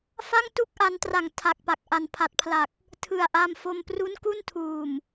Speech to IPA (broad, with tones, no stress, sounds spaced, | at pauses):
f a˥˩ ŋ t u˥˩ k̚ ʔ a˧ n t r a˨˩ ŋ tʰ a˨˩ k̚ p a˨˩ k̚ ʔ a˨˩ n pʰ a˨˩ t̚ pʰ l a˨˩ k̚ | tʰ ɯ˨˩ a̯ ʔ a˧ m f o˧ m p r u˦˥ n k u˥˩ n tʰ uː˨˩ m